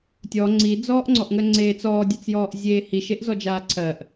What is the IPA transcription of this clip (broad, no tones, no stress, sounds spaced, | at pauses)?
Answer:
tʲ ɔ ŋ͡ǀ i d͡z ɔː ʔ ŋ͡ǀ ɔ ʔ ŋ ɜ ŋ͡ǀ eː t͡s ɔː dʲ a t͡s j ɔː ʔ zʲ eː h i ʃ e ʔ z ɔ d͡ʒ aː ǀʰ ɜ ʔ